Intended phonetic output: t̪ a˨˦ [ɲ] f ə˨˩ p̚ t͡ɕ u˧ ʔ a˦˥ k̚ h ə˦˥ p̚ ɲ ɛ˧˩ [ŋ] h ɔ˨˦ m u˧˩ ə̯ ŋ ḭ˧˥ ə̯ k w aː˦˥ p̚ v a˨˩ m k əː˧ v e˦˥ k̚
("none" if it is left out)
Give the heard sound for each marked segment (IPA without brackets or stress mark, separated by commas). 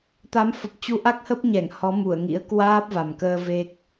m, ŋ